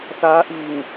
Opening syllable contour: rising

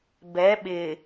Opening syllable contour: rising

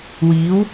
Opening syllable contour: rising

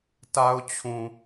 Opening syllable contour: high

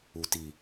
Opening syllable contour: low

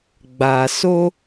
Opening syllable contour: low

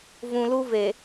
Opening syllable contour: low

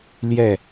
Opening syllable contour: falling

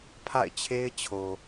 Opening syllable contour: falling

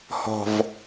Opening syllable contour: low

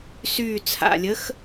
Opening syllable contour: low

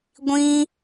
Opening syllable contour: high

